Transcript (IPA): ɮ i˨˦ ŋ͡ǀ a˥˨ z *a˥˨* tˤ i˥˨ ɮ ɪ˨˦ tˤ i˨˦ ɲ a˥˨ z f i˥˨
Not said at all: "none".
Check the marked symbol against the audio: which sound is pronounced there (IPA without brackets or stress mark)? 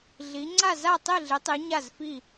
a˥˨